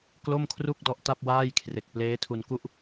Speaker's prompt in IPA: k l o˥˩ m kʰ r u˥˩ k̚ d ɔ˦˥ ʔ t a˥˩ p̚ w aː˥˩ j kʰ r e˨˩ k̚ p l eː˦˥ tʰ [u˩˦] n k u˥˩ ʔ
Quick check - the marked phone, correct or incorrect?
incorrect